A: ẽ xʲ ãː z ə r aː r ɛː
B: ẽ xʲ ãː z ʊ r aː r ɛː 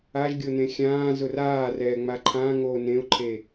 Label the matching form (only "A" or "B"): B